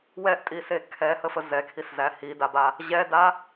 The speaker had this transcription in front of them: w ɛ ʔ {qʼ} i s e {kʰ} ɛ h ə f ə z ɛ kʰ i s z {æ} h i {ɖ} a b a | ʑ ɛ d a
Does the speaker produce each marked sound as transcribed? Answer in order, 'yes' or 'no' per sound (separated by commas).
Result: no, yes, yes, no